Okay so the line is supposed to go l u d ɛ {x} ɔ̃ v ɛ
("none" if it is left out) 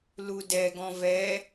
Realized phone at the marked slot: ɡ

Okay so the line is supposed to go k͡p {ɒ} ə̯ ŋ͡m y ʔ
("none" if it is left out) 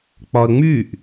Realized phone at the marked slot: ɒ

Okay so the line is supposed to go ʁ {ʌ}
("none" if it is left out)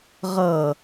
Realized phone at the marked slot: ʌ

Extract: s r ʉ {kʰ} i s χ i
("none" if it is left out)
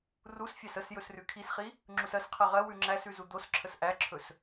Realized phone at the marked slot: kʰ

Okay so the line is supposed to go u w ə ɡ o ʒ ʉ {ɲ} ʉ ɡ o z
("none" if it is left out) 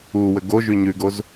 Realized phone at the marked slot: ɲ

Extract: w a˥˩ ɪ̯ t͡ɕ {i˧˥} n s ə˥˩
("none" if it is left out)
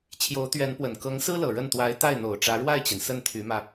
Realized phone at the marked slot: i˩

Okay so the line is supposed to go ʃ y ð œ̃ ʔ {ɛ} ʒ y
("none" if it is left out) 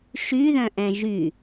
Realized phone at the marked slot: ɛ̃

